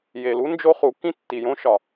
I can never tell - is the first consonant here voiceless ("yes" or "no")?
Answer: no